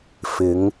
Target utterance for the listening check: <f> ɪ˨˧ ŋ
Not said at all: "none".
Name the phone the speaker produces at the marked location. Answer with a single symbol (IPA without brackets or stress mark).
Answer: f